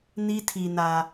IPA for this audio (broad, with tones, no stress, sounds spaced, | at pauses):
n i˦ tʰ i˨ n ä˨